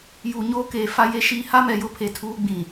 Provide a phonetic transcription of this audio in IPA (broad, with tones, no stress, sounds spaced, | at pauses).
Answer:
j uː˨ ɲ oː˦ k eː˨ f a˦ j e˦ ʃ iː˦ h a˦ m ɛ˨ j ʊ˦ pʰ e˨ tʰ uː˦ ɡ͡b ĩ˨